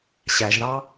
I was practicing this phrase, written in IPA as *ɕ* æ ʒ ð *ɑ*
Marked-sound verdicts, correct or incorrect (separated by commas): correct, correct